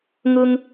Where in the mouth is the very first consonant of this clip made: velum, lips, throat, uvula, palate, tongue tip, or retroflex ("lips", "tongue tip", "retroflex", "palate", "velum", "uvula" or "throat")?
velum